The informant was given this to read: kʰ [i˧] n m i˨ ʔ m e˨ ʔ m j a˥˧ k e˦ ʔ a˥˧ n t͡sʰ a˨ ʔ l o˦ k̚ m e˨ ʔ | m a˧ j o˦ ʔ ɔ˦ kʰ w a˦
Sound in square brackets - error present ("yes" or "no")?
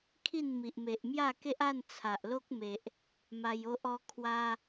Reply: yes